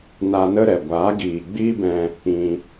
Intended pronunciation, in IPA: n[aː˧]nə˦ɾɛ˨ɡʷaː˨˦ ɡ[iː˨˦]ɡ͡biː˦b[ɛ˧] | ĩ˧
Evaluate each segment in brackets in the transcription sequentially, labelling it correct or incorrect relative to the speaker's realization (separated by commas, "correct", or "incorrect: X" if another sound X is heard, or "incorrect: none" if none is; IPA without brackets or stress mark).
incorrect: a˧, incorrect: iː˨, incorrect: ɛ̃˧